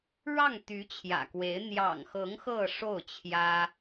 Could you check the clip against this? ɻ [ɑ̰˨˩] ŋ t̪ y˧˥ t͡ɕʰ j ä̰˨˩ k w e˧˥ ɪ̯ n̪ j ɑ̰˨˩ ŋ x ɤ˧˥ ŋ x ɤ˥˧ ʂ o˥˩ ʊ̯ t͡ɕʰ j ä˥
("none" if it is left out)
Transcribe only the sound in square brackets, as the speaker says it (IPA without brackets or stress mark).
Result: ɑ˥˩